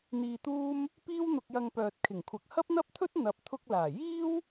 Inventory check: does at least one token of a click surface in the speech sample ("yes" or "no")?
no